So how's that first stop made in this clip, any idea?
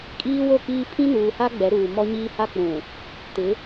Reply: ejective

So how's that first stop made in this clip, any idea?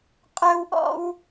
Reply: ejective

